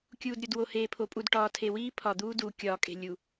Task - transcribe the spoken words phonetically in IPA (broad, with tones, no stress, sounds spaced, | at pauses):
kʲ uː˨ d ɾʲ o˨ d w o˨ h eː˨ pʰ o˨ pʼ u˨ d ʈ ɒː˨ tʰ e˨ w iː˦ pʰ ɒ˨ d̪ uː˦ d uː˨ kʲ ɒː˦˨ kʼ e̤˦˨ lʲ u˨